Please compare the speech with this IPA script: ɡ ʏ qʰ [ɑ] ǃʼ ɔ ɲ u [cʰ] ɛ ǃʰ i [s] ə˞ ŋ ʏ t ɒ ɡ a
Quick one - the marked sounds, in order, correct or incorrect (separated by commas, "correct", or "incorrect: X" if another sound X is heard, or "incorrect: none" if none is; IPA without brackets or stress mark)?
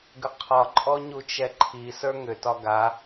incorrect: ɒ, incorrect: t͡ʃ, correct